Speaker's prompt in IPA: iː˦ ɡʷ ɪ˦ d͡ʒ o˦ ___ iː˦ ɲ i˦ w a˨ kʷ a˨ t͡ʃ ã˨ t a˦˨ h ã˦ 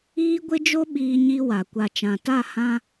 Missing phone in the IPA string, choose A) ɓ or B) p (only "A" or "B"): A